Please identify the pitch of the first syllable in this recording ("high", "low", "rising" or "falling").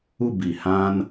falling